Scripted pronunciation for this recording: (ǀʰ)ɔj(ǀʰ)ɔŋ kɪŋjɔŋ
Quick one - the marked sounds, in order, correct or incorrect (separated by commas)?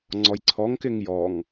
incorrect, correct